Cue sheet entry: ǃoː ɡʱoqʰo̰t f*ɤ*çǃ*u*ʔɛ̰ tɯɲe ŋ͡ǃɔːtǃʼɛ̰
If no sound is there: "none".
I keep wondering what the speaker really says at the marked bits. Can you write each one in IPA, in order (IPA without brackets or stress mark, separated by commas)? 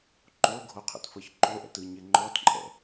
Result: ɤ, o